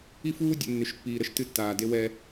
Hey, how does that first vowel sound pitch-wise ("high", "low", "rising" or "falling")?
high